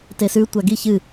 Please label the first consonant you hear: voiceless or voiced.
voiceless